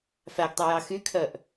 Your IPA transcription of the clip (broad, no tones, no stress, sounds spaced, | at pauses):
f æ ɡ tˤ ʉ j ɑ x y kʰ œ ʔ